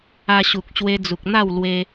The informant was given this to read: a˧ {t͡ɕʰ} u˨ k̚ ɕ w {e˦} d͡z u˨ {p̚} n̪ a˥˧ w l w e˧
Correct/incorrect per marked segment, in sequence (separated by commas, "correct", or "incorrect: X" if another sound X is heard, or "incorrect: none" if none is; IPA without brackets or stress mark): incorrect: ɕ, incorrect: e˧, incorrect: k̚